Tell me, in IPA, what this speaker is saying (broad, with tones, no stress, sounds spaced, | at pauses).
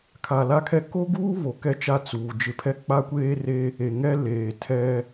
kʰ a˨ l a˦ kʰ ɛ˦ k o˦ ɡ uː˦ β o˨ k ɛ˦ t͡ʃ a˦˨ t͡s uː˨ d͡ʒ ɪ˨˦ pʰ ɛ˦ k͡p a˦ kʷ eː˦ r e˦ | e˨ ŋ ɛ˦ l eː˨ tʰ ɛ˦